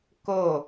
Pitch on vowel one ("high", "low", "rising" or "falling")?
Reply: falling